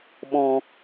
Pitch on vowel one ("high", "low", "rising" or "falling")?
low